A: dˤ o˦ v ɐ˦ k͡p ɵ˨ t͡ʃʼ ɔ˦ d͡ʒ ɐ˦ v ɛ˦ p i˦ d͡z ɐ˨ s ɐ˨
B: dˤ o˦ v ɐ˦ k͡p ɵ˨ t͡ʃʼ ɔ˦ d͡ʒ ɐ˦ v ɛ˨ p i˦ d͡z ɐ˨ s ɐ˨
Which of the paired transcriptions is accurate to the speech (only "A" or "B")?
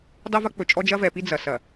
B